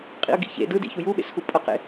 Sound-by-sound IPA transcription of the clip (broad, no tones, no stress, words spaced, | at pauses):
qʼḭə̯ɡḭçḛ dɯdḭ çujuɓḛsxu pʼʌqḛ